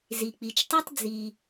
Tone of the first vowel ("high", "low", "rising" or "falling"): low